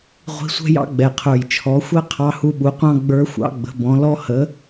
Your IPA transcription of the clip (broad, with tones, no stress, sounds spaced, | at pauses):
ʁʷ i̤˧˥ sʷ ɛ̤˥ j ɑ̰˥ ɡ͡b ɛ˨˩ qʰ ə˞˨˩ j t͡ʃʰ ɔ˩˥ xʷ ɛ˥ qʰ ɑ˧˥ h u˧˥ ɓ u˩˥ qʷ ɑ̃˥ ɡ͡b ə˞˧˥ xʷ ɑ̰˧˥ ɡ͡b ə̤˩˥ b ɔ̃˩˥ l ɔ˥ h ə˩˥